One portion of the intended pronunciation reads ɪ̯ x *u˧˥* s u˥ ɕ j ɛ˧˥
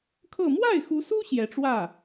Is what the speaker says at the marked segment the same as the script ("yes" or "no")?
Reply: yes